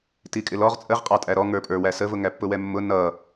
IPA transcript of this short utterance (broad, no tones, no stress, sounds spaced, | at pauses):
t i kʼ ɪ l ɔ ʁ t͡sʼ ə ʁ qʼ ɑ tʼ æ ɾ ɔ ŋ ə˞ pʼ ə˞ w æ s ə v ʊ ŋ æ pː ʊ w ɛ mː ʊ n ʌ